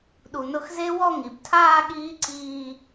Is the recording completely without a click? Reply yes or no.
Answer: no